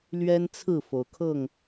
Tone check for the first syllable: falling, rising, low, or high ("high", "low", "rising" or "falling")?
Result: high